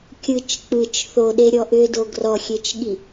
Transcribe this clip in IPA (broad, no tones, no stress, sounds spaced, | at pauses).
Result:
kʲ ɯ t͡ʃ k͡p ɯ t͡ʃ θ o ɗ e ɾʲ ɔ ʔ ʏ d o ɡ r ɔ xʲ e t͡ʃ ɠ i